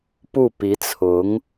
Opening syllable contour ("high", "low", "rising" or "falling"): falling